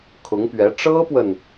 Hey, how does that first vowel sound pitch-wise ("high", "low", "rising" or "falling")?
rising